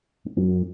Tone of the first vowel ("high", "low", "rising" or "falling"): low